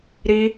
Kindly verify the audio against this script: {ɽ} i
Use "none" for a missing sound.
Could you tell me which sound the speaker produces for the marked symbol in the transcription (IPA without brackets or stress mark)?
ɾ